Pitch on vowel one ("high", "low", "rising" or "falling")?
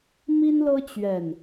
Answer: high